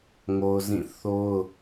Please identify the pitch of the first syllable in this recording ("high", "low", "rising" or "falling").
high